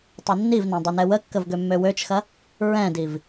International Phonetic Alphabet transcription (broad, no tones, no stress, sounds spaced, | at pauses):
tˤ ɐ nː i v n ã dˤ ø n ɛ w ə kː ə v ɡ ø mː ø w ø t͡ʃ x ɐ | ɹ ɛ̃ d i v